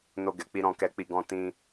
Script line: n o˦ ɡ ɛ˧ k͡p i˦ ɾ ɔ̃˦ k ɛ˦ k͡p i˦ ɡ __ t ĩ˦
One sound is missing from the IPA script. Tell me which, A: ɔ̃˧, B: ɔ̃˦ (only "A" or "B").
B